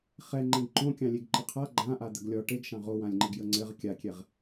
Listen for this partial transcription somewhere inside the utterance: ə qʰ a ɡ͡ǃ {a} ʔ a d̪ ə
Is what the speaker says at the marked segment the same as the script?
no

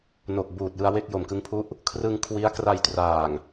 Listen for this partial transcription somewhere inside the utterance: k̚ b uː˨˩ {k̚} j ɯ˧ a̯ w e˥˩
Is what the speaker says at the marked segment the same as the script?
no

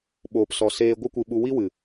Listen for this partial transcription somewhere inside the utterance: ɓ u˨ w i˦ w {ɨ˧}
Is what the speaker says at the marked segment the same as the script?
no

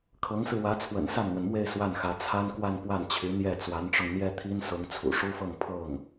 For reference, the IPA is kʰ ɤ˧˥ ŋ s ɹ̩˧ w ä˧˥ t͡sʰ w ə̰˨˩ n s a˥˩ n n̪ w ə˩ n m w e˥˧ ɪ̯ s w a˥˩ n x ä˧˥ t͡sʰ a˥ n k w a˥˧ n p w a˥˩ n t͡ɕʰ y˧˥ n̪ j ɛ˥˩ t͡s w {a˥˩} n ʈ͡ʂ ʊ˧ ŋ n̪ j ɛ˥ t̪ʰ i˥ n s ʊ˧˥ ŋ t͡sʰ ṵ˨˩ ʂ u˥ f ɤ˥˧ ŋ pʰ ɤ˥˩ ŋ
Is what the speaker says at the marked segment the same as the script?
no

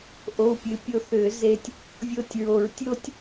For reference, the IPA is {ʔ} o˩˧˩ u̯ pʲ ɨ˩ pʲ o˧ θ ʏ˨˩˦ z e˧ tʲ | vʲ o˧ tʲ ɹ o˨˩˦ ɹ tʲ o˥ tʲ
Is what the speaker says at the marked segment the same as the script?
yes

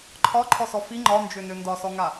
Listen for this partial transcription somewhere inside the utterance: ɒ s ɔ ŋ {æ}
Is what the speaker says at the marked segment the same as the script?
no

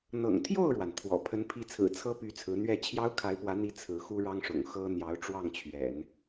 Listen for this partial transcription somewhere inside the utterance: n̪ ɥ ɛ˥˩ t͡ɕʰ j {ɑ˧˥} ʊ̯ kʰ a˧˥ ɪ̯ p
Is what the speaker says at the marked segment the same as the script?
no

